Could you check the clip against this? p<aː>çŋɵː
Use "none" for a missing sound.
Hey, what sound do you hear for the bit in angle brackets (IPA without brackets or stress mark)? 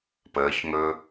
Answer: əː